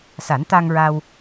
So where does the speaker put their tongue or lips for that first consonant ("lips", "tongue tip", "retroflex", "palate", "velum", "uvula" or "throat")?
tongue tip